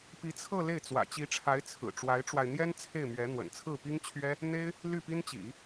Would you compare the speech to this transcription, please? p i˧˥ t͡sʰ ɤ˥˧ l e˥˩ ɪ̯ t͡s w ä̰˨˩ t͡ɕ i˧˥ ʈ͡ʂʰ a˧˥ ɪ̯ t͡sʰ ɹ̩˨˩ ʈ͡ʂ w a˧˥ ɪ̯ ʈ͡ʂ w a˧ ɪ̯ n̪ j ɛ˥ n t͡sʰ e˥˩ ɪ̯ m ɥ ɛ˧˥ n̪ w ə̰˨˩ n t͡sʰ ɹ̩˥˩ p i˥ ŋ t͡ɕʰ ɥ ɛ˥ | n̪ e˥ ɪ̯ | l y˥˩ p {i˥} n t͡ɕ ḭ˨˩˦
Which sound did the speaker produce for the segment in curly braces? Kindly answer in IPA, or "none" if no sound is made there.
i˥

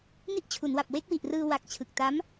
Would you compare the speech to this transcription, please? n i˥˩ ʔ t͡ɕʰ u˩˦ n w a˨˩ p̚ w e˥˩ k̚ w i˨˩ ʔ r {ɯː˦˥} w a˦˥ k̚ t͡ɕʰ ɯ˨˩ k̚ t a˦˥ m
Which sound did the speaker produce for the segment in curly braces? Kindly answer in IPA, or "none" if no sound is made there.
ɯː˧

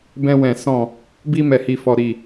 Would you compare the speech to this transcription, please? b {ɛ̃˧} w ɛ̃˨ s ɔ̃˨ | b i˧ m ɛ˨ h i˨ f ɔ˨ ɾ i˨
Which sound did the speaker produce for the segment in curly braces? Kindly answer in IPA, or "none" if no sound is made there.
ɛ̃˧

